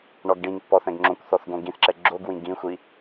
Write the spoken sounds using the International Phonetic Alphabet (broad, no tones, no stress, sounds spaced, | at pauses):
ɳ ɔ ɡ ɖ ĩ ŋ pː ɔ θ ɛ̃ ɡ ŋ͡ǁ õ kʷ θ ɔ θ ɡ õ ɡ ĩ θ ǁ ɛ ɡ͡ǁ o ɡ w ĩ ɡ ĩ xʷ i